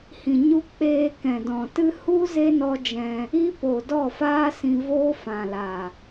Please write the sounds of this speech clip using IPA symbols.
h ĩ˨ ɲ u˧ k͡p eː˧ k ɛ̃˨ d ɔ̃˨ t ɨ˦ h u˦ z e˦ n ɔ˦ d͡ʒ ɛ̃˧ | i˦ p o˨ d ɔ˦˨ f aː˦ s ĩ˧ v oː˦ f ã˨ l a˨

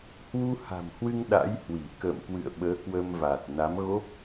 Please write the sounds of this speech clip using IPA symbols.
h w u˧ h a̤˨˩ m h w ɨ˧ ŋ ɗ a̰˧˥ j h w i˧˩ k ə̰ː˧˨ m k w ɨ̰˧˨ ə̯ ɓ əː˨˦ k w ə˧ m v a˨˩ t̚ n a˨˦ m ɣ o˦˥ p̚

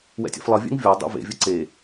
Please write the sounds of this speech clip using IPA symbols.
w ɛ̰ tʲ ɛ̰ f lˠ ʌ vʲ ɛ̰ ŋ vʲ ɔ dˤ ḛ v ḛ vʲ ʌ ǀ e

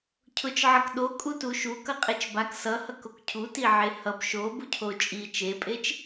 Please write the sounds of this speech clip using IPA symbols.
cʰ ʊ t͡ʃ ʕ ʌ k ɗ o kʼ u t u ʃ u k ʌ qʼ e t͡ʃ b a k s ʌ h ʌ k o k cʰ u t i ʕ e h ʌ b ʃ o b u cʰ o t͡ʃʼ i t͡ʃ e pʼ e t͡ʃ

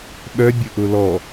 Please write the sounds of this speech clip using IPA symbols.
ɓ œ bʲ ʊ ʔ ʊ l ɔ

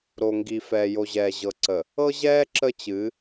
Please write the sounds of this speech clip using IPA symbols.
ɾ o˨ ŋ ɡ i˨ f ɛː˨ j o˨ ʑ ɛː˨ ʑ ɤ˨ ǀ ə˨ | ɤ˦ ʑ ɛː˦ ǁ ə˦ t͡ɕ ɨ˨˦

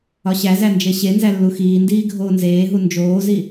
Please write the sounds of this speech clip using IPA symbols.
ɒ ɕ æ z æ n d͡ʒ e ɕ e n z æ lː u x iː n d iː ɡʱ oː n z eː ɦ u n d͡ʒ oː z i

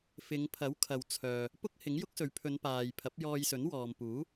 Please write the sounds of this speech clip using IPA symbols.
f ɪ˨˧ ŋ pʰ ɐ˨˥ w kʰ ɐ˨ w t͡sʰ œː˨ | p ʊ˥ k̚ h ɪ˨˥ ŋ j ʊ˥ k̚ s ɵ˨˧ ɥ pʰ ɵ˨˧ n p aː˨ j pʰ ɐ˨˥ p̚ j ɔː˧ j s ɵ˨˥ n w ɔː˨ m p uː˨˥

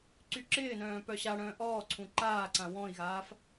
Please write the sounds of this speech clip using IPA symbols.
ǀ y ǁ ɪː n œ̃ː p œ ɕ a ɽ œ̃ː ʔ ɔː ǀʰ ũ ǃ aː ǀ ã w ɔ̃ i̯ ɣ aː f

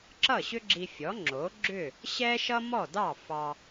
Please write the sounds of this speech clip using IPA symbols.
ǁ ʌ˥˩ ɕ ʏ˥ ɡ͡ǁ i˧ fʲ ɔ˩˥ ŋ͡ǁ o˩˥ ɡ͡ǁ ʏ˥˩ | ɕ ɛ˥ ʃ ʌ˥ m ɔ˥˩ d ɑ˥˩ f ɑ˧

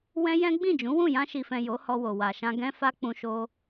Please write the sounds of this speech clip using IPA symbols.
w ɛ̃˦ j ɛ̃˦ ɡ͡b ĩ˦˨ d͡ʒ ũ˨˦ w ũ˦˨ j ã˧ ʃ i˨ f ɛ̃˨ j o˨˦ h ɔ˧ w o˨ w a˨ ʃ ã˧ ɡ ɛ̃˦ f a˦ k͡p ũ˧ ʃ o˧

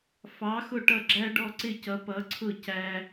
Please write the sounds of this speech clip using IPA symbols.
f ɑ˨˥ x ʊ˥˨ ʈ ʌ˥˨ ɡ͡ǁ æ˥ ɖ ɔ˥˨ ǀ ɪ˥˨ c ʌ˨˥ p ʌ˨˥ ǀʰ ʊ˥˨ c æ˥

